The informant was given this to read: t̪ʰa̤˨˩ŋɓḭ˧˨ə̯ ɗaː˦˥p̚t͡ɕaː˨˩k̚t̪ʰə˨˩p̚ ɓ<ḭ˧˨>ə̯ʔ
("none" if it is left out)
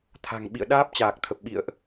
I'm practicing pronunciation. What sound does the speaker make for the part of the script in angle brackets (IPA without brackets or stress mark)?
ḭ˧˨